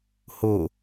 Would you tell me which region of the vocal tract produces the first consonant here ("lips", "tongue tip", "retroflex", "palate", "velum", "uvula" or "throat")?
throat